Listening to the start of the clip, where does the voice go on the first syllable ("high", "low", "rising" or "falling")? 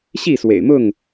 falling